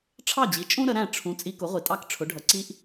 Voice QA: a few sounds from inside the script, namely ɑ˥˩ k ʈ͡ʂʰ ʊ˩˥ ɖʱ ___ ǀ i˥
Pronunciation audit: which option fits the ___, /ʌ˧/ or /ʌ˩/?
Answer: ʌ˩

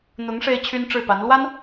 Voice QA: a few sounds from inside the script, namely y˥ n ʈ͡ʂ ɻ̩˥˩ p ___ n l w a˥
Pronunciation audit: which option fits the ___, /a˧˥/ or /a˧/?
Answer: a˧˥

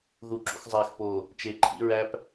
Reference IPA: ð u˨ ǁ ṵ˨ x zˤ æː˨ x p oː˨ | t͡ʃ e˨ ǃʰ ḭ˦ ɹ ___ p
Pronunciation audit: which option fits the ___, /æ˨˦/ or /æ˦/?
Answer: æ˦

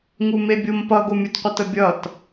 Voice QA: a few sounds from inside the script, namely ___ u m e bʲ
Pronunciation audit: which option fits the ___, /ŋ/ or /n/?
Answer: ŋ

